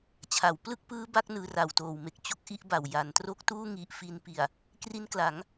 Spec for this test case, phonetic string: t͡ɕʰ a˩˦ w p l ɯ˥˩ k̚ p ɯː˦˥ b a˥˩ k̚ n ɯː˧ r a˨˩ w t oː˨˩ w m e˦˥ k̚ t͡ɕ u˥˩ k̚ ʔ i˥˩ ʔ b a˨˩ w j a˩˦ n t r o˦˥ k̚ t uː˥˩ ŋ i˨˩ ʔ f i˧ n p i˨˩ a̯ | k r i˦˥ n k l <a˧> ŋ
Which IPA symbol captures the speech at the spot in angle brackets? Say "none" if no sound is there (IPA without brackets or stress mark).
a˩˦